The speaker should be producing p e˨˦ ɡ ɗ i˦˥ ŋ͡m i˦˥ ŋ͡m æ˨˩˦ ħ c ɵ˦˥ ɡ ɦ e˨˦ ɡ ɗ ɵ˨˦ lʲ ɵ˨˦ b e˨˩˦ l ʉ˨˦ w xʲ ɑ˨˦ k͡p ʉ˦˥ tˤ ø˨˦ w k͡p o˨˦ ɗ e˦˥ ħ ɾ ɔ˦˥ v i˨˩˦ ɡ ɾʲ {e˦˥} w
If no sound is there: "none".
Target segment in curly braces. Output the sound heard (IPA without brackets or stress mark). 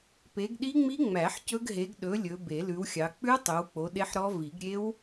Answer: e˦˥